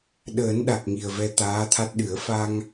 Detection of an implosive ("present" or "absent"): present